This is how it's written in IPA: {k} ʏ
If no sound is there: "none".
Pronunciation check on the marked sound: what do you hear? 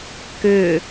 k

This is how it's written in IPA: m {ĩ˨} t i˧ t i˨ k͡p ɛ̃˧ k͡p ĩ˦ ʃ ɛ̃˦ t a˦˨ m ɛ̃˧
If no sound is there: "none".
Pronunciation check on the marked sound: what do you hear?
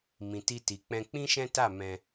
ĩ˨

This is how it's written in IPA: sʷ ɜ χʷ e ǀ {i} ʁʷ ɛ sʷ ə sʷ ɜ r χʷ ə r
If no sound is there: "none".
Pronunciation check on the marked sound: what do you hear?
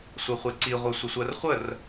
i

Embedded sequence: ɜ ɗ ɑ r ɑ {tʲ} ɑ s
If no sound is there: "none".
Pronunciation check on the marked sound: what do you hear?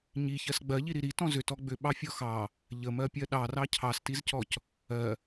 cʰ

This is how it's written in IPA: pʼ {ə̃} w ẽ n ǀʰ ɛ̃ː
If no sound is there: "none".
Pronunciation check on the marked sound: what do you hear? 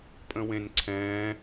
ə̃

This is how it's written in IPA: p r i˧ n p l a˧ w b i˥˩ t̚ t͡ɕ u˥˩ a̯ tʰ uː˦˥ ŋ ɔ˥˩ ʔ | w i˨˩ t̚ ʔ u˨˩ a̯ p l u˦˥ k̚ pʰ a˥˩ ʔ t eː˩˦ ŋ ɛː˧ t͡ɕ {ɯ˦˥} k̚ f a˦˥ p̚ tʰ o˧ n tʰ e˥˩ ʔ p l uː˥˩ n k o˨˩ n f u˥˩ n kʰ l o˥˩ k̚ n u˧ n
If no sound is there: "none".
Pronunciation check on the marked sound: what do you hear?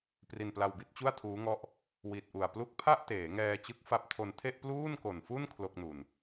ɯ˦˥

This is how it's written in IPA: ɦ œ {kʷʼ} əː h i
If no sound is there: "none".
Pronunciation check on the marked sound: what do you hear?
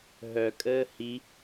kʼ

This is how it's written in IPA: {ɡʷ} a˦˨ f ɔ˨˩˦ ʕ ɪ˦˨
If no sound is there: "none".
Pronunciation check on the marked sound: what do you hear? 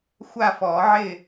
xʷ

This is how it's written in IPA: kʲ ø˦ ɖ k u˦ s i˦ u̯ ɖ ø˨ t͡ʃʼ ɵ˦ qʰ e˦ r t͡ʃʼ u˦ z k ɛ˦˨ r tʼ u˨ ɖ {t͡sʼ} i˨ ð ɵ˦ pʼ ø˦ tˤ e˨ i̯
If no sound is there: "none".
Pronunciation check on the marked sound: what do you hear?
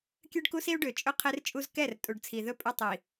t͡sʰ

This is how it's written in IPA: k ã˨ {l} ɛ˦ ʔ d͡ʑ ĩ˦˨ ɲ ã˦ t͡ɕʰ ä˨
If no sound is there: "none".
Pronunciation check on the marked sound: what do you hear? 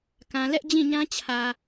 l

